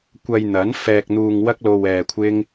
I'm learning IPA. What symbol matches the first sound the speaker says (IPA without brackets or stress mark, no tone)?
kʷ